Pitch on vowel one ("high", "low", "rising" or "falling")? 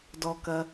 low